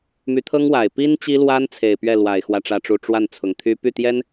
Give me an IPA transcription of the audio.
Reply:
m y˧˥ t̪ʰ ɤ˥ ŋ w a˨˩ ɪ̯ p i˥ n t͡ɕ i˥ l w a˥ n t͡sʰ e˨˩ ɪ̯ p ɥ ɛ˥˩ l w a˨˩ ɪ̯ x w ä˥˧ ʈ͡ʂ ä˥˧ ʈ͡ʂ u˥˧ ʈ͡ʂ w a˥˩ n t͡sʰ ʊ˨˩ ŋ t̪ʰ y˥ p y˥˩ t̪ j ɛ˥ n

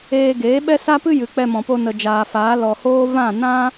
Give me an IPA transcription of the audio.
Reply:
eː˦ ɡ eː˨˦ ɓ ɛ˦ s a˦ p ɨ˦ j ɨ˨ k͡p ɛ˧ m ɔ̃˨ p o˧ n ə˨ d͡ʒ aː˨ f aː˨˦ l ɔ˨ h oː˦ v ã˦˨ n ã˦

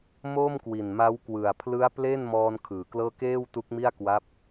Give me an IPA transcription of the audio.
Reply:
m oː˥˩ m k w i˨˩ n m a˦˥ w k w ɯ˨˩ a̯ pʰ l ɯ˦˥ a̯ p l e˥˩ n m ɔː˧ n kʰ ɯː˨˩ k l ɤː˥˩ k eː˥˩ w t u˦˥ k̚ m i˥˩ a̯ k w a˦˥ p̚

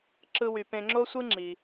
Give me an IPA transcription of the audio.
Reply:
ǁ ɯ˥ w y˧ p ẽ˧ ŋ͡ǁ o˥ sʷ ɯ˥ ŋ͡ǁ i˩

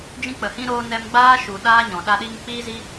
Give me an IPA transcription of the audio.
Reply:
d͡ʒ ĩ˧ k͡p ə˨ h ĩ˧ ɾ oː˧ n ɛ˧ m ɡ͡b aː˦ ʃ u˨ ɗ aː˦ ɲ ɔ̃˨ ɗ a˧ ɗ i˧ ŋ k͡p iː˦ z i˦

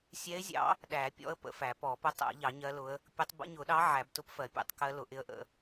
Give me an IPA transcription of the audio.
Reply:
sʲ ɛ˧˥ ɪ̯ zʲ ɑ̰˧˥ | ɗ æ˨˩˦ pʲ ɔ̰˧˥ ə̯ p ə̰˨˩˦ f æ˨˩˦ p ɔ˨˩˦ p ʊ˧˥ tˤ æ̰˨˩˦ ʎ ɑ˨˩˦ ɲ ɜ˧˥ l ʊ˧˥ ə̯ | pʲ ʊ˧˥ tˤ b ə̰˧˥ ɲ ʊ˨˩˦ ɗ ɑ˧˥ ʕ æ˨˩˦ b t ʊ˧˥ p f ɜ˨˩˦ pʲ ɛ̰˧˥ tˤ k ɜ˧˥ l ʊ˨˩˦ ʔ ɪ˧˥ ə̯ ʔ ə̰˨˩˦

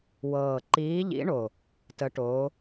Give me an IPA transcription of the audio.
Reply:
w ɤː˨˩ ǃ iː˨˦ ʎ ḭ˨˦ ɳ o˨˩ | t ə˨˦ ʈ oː˨˦

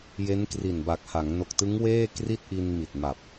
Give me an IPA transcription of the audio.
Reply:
j e˦˥ n k r i˨˩ n b a˨˩ k̚ h a˩˦ ŋ n o˨˩ k̚ t ɯ˦˥ ŋ w eː˥˩ k r i˥˩ t̚ ʔ i˧ n m i˨˩ t̚ m a˨˩ p̚

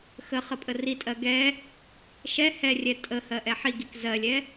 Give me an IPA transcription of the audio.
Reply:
x ə χ ə pʼ ə r i tʼ ɜ ɡ ɛ | ʃ ɛ h ɛ rʲ ɛ tʼ ə h ɜ ʔ ɛ ħ i ɡ i k z ɜ lʲ ɛ

